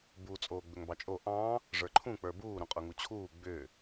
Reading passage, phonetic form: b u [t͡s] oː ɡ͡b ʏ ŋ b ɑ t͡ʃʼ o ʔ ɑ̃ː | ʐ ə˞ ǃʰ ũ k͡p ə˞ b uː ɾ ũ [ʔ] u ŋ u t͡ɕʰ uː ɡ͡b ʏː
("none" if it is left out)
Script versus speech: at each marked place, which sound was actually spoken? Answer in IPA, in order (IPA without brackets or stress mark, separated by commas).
t͡sʼ, qʼ